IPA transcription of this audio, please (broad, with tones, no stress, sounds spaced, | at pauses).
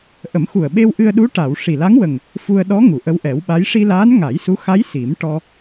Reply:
ʔ ə˨˩˦ m x u˨˩ ə̯ ɓ e˧ w ʔ ɨ˧ ə̯ ɗ u˧˥ ʈ a˨˩˨ w ʂ i˨˩ l a˧˥ ŋ w ə˨˩ ŋ | f u˧ ə̯ ɗ ɔ˧˥ ŋ u˨˩˨ ʔ ə˧˥ w ʔ ɛ˨˩˦ w ɓ a˧˥ j ʂ i˧ l aː˧˥ n ŋ a˨˩˦ j s u˧˥ x a˧˥ j s i˨˩˦ m ʈ ɔ˧